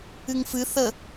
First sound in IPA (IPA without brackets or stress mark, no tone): ɨ